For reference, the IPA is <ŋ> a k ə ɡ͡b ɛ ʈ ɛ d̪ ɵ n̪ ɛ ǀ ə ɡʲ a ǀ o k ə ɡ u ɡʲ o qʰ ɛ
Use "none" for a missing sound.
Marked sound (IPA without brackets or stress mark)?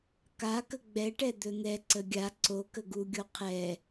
k